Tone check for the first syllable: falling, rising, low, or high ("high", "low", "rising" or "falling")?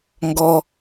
low